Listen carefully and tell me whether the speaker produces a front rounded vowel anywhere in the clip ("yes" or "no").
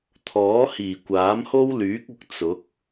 yes